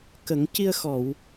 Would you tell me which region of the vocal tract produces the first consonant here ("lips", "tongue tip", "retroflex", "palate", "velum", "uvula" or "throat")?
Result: velum